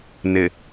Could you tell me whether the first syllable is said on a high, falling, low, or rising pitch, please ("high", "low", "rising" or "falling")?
low